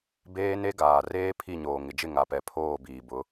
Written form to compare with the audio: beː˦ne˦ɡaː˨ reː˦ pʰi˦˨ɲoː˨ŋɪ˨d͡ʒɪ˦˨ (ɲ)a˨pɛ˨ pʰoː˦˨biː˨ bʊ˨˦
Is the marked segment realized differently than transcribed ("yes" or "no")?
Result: yes